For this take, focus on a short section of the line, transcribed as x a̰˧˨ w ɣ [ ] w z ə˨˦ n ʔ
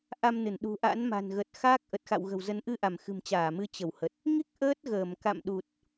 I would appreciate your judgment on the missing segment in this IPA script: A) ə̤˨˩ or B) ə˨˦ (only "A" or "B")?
A